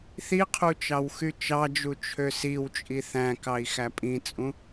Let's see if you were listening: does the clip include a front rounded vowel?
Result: yes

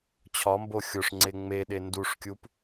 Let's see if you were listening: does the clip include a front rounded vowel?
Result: no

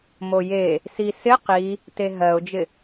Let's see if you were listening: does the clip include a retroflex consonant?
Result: no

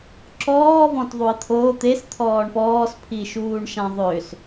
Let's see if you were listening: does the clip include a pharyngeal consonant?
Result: no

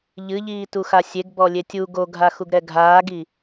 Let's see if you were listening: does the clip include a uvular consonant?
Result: no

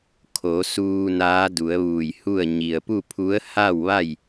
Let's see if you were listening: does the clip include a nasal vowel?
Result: no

